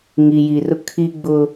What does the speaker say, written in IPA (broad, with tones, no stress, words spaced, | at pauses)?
ŋi˨ji˨rʊ˦ kʰi˦ɡ͡bʊ˦